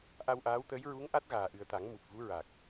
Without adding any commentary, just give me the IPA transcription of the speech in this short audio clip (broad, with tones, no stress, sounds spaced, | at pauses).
ʔ a˧ w ʔ aː˧˥ w t̪ əː˧˥ j ɹ u˧˥ ŋ ʔ a˦˥ t̚ ɣ aː˨˩ ʔ ɨ˨˩ ə̯ t̪ a˨˩˦ ŋ m u˨˩ p̚ v u˧˥ ɹ a˨˩ k̚